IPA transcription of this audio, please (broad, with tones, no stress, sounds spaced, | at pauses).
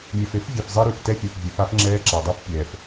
mʲ ɛ˨ f e˦ f vʲ e˨ f zˤ e˦ ɾ ʉ˨ f t ɛ˦ fʲ ɛ˨ f vʲ e˨˦ f a˦ f ŋ͡ǁ ɛː˦ ǁ a˨ dˤ ʉ˦ f pʲ ɛː˨ f